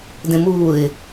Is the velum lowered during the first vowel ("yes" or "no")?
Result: yes